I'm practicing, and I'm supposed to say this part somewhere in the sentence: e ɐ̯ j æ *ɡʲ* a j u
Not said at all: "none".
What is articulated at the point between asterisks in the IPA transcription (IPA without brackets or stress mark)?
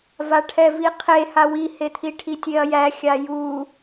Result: xʲ